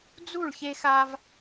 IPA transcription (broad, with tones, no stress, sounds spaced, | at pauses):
d͡z u˥˨ ɭ ç e˦ x a˦ v